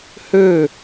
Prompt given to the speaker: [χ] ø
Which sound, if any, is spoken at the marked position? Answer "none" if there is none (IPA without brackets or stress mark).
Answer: h